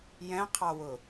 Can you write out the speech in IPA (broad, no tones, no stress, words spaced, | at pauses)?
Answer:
jɛ̃qʰɑwʊ